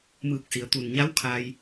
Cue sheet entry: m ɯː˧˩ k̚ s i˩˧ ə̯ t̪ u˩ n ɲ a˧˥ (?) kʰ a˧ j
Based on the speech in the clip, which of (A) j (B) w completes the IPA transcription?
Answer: B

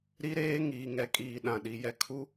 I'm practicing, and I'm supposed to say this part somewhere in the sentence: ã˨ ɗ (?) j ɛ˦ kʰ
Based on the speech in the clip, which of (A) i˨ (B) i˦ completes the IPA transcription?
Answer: A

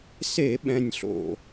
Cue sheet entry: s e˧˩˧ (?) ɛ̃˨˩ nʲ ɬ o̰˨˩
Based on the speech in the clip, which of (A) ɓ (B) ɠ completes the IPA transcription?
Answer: A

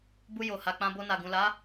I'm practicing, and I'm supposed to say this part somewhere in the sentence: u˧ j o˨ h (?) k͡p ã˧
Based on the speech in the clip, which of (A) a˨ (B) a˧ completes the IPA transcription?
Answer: A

